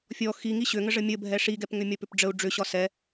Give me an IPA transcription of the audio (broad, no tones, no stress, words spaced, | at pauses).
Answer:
fʲɔ xi ŋiɕʏŋəʐə mʲə bʱɛʂiɡɛpŋʏ mʲɒpʏpɖ͡ʐəu̯ ɖ͡ʐʏɕɒ sɛ